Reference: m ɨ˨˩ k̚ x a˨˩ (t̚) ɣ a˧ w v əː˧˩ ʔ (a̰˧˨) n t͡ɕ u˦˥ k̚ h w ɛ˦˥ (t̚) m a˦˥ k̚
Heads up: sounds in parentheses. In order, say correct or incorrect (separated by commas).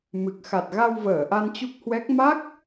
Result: correct, incorrect, incorrect